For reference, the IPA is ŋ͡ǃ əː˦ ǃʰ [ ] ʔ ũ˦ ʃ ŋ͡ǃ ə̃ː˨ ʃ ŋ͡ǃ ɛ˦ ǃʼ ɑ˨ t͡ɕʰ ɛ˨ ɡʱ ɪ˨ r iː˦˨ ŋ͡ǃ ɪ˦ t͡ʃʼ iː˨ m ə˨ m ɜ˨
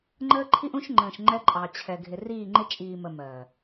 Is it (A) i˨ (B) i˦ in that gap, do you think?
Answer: B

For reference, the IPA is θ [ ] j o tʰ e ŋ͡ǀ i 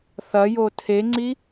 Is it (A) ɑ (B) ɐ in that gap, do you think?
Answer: B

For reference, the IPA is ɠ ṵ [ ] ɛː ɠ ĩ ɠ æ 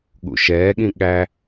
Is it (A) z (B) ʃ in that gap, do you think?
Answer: B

